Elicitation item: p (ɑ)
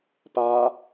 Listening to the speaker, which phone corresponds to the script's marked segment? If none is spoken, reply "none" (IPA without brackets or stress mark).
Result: a